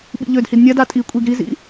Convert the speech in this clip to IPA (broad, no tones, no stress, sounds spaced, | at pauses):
ɓ ḭ ʎ ø d h i d nʲ a d a tʼ i kʷʼ i ɡ ɾ i z ḭ